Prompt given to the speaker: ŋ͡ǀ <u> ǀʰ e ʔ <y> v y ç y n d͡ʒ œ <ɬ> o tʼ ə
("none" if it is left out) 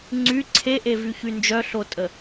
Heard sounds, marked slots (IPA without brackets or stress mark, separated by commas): y, e, ɬ